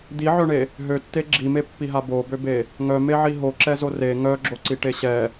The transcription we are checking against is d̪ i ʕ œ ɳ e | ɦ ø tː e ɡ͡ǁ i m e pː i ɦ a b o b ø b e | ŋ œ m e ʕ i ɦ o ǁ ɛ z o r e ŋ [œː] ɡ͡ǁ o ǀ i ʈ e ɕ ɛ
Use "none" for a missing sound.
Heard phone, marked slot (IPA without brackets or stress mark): œ